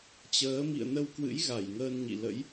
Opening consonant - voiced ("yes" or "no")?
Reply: no